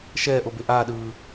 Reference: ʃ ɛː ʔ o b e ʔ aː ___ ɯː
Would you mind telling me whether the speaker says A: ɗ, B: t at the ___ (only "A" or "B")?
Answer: A